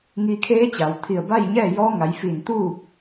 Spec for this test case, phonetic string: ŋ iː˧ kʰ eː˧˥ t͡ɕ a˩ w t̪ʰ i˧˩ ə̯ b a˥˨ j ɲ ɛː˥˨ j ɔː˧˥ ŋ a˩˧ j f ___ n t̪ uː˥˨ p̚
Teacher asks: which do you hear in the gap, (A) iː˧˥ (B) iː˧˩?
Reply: B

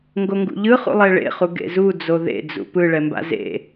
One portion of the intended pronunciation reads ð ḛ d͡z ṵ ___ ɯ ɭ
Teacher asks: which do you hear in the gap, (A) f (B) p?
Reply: B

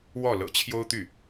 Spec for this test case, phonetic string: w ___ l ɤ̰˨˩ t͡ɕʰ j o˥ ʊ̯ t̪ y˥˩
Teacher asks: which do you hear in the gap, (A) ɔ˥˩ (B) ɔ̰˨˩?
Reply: A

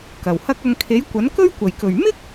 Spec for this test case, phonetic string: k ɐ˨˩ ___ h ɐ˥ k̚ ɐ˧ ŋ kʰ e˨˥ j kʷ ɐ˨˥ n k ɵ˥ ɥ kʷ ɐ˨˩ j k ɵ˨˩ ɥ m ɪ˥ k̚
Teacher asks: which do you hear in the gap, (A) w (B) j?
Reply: A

